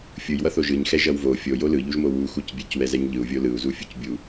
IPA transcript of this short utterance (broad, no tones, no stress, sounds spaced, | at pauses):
fʲ ɯ j w ʌ θ o ʒ ɯ ɲ x ɛ ʒ ʌ w v o fʲ o j o l ɯ ʎ u ʒ m o w u x u c bʲ e c w ɛ z ɛ ɲ ʎ ɯ u̯ vʲ o l ɯ u̯ z u fʲ u c bʲ u